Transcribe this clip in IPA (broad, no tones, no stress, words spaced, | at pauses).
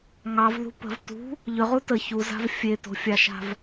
ŋɑvðṳ pə̤v tṳ | ʎʏʁu tə çuza̤v fʲeto̤fʲɑʃa̤v